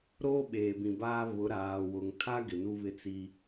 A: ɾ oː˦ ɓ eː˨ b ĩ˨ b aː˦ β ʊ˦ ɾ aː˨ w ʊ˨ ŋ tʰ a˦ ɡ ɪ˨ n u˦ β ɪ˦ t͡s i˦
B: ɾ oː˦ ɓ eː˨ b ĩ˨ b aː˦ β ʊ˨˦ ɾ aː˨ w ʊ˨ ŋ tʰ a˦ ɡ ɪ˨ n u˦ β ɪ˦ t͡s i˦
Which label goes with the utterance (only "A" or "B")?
B